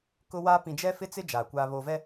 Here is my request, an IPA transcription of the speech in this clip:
kʊ˦waː˦ pĩ˨d͡ʒɛ˦fɪ˦t͡sɪ˦ d͡ʒaː˨kʷaː˦ βoː˨vɛ˦

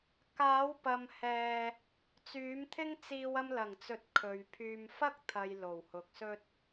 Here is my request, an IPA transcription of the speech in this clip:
kaː˨˥wpɐ˨m hɛː˧ | t͡syː˨˥mt̪ʰɪ˥ŋt͡siː˧w ɐ˧mlɐ˨˩ŋt͡sɵ˨t̚ kʰɵ˨ɥpʰyː˧m fɐ˥k̚ t̪ʰɐ˨j lo˨˩whʊ˨k̚ sɵ˧t̚

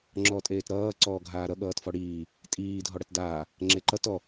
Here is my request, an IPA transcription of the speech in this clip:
ŋ͡ǁɔtʼeːtɾʌː ǀɔːɡʱaːɾʌ ɠʌːtfɔɽiː | tʼiː dʱɔɽʌtdaː | ŋ͡ǁeǃʌt ɔ

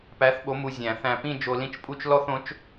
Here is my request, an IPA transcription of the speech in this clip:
pæ˨˥θɓo˨˥ mu˧zʲæ̃˨˩˦θæ̃˧˩pĩ˥˧ d͡ʒo˧lĩ˥˩t͡ʃpʼu˥˧t͡ʃ lɔ˥˧θõ˨˥t͡ʃ

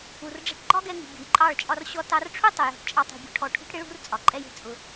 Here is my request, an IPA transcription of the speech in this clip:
u˨rɖ͡ʐɛ̤˧ʈ ɡ͡ǃɒ˦ɡɛ˧ŋṳ˨ bʲṳ˨jǃʼɑ˦˨ɭt͡ʃʼɒ˦r ɕɔ˧tɑ˧rʈ͡ʂʰu˦ tˤʊ˨jɔ̤˧ʈt͡ʃʼɑ˧ tˤṳ˧bʲṳ˦ʈʰɔ˦˨ ʈʰṳ˦ʈɽɪ˦ɭṳ˦r t͡sʼɒ˨ǃʼɛ˦jɛ̤˧ t͡sʼʊ˧

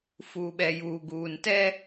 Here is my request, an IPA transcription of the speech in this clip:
fuː˨ɓɛ˨juː˨ ɡuː˨ntɛ˦

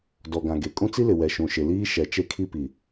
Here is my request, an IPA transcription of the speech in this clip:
dɔ˨ɡã˨ ɡe˨kʼũ˦t͡si˦lɪ˨ wɛ˨ʃũ˨ʃɪ˨ liː˦ ʃɛ˨ t͡ʃe˦kʰi˦pi˨

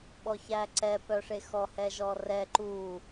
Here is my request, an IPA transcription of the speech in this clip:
ɓɔçæǀɛ pœʂexɔ hɛʒɔrɛ ǃu

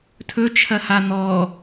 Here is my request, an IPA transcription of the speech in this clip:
tʰɵt͡ʃʰɐha n̪ɔ

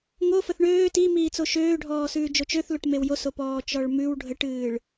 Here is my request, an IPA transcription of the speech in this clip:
ŋo fəθɳøː timiːt͡so ʃøːɖʱɔːsʉː d͡ʒot͡ʃøθloʈ mewjoso pɔːt͡ʃɔɭmʉw ɖʱəʈɨːɭ

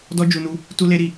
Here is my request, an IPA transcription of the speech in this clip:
dɔ˦d͡ʒu˧nu˧ | tu˦le˦ ɾi˦˨

